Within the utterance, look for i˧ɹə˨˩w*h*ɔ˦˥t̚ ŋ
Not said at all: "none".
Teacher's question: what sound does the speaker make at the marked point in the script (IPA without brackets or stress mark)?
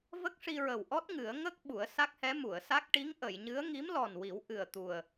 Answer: ʔ